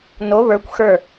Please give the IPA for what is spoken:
n o β ə˞ kʷ x ə˞

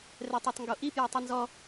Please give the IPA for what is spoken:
r ɛ tˤ o tˤ ŋ ɡ o ʔ i p j ɛ tˤ i n z ɔ

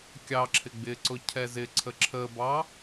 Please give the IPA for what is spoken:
kʲ ɑ ǁʰ ɪ ɡ͡b ɪ ǀ ʊ cʰ ɛ z ɪ ǀʰ ə ǁʰ ə b ɑ

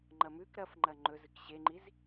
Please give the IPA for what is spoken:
ŋ͡ǃ ɐ m ʉ k ɾ ɐ f ŋ͡ǃ ɐ ŋ͡ǃ ɵ z ɨ k ɕ e ŋ͡ǃ i z

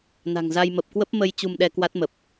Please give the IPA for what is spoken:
n a̤˨˩ ŋ z a˧ j m ə˨˩ p̚ k w ə˦˥ p̚ m ə˧ j t͡ɕ u˧ m ɗ ɛ˧ k w a˦˥ t̚ m ə˨˩ p̚

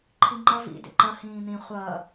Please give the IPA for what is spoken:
ǃʰ i ŋ͡ǃ ʌ v ḭ d ḛ ǃ ʌ h ĩː n̪ ĩ χʷ ʌː

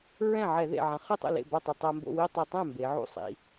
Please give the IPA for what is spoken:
ɹ ɛ̃˥˩ ʕ ɛ˧˩˧ ð ḛ˨˩ ʕ ã˩˧ χ ɯ˥˩ tˤ o̰˥˩ l ḛ˥˩ b a˥˩ tˤ ɯ˨˩ tˤ a˧ m b o̰˥˧ w i˥˧ tˤ i˨˩ tˤ ɛ̃˥˩ m b e˩˧ ʕ ṵ˥˩ sˤ ḭ˩˧

